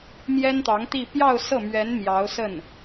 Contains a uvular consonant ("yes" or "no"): no